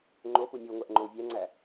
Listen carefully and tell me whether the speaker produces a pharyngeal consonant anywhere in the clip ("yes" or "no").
no